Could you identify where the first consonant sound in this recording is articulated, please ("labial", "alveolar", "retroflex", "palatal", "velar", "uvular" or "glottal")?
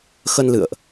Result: velar